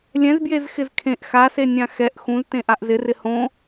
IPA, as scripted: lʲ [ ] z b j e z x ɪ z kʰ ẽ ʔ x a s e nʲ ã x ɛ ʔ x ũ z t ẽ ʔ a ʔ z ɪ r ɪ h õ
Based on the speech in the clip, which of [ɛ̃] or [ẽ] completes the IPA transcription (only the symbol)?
ɛ̃